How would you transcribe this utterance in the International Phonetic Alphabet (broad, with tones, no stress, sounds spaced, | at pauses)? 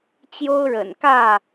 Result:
t͡ɕ j o˦ ʊ̯ ɻ ə̰˨˩ n k ä˥˨